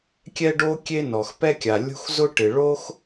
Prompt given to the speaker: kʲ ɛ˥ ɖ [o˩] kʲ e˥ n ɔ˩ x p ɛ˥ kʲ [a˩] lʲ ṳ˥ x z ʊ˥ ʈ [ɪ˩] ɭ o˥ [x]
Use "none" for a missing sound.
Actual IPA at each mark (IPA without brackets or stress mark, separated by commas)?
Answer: o˥, a˩, ɪ˩, x